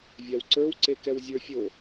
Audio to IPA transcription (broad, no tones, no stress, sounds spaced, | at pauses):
vʲ a w ǀ ə˞ w ǀ e k ɛ w zʲ ə˞ fʲ o